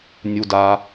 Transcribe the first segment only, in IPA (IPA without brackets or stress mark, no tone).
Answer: nʲ